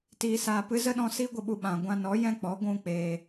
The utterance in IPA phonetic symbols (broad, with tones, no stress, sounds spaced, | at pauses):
t iː˧ s aː˧ p ɨ˦ z ə˦ ɗ ɔ̃˧ s i˦ ɡʷ ə˧ ɓ u˧ ɓ ã˨ ɡʷ ã˧ n ɔ˨˦ j ɛ̃˦ k͡p ɔ˨˦ ɡʷ ũ˦ k͡p eː˧